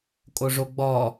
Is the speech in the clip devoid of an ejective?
no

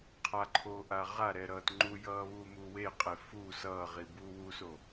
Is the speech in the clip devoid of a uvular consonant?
no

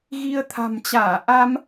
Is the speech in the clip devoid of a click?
yes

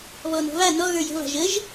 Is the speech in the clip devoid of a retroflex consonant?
yes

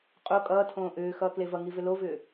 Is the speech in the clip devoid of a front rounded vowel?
no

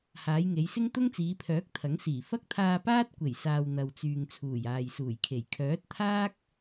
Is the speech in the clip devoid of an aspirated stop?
no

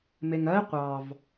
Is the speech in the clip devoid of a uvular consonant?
no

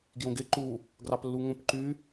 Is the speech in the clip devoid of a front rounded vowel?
no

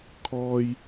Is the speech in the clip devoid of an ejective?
yes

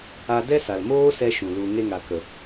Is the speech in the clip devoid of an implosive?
yes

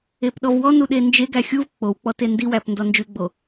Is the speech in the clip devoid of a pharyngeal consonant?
yes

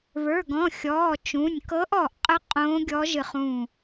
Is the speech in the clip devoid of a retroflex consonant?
yes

